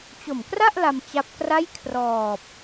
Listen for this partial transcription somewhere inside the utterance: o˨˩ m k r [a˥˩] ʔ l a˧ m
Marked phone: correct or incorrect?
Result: correct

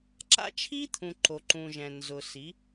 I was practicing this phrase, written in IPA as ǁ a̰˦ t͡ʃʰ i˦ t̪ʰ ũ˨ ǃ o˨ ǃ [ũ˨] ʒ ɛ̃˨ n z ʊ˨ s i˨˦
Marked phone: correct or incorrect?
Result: correct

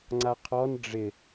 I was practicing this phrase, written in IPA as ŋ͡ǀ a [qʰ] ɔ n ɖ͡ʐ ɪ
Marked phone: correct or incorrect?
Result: correct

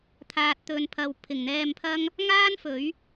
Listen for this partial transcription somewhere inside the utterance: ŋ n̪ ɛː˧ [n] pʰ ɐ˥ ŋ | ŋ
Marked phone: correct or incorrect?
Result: incorrect: m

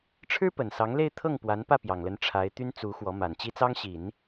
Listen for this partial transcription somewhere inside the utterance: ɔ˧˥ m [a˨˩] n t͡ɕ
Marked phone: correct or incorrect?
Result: correct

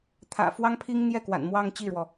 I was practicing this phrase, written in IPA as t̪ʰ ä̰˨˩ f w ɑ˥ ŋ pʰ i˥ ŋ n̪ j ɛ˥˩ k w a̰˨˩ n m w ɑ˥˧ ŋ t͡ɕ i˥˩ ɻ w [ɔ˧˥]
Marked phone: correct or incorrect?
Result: incorrect: ɔ˩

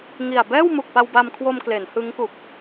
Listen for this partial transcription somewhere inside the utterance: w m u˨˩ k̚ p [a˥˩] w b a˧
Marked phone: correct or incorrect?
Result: incorrect: a˧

